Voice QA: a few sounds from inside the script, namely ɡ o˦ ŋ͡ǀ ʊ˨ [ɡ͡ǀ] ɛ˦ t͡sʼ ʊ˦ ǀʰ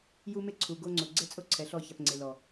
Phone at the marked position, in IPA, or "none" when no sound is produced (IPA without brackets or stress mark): ɡ͡ǀ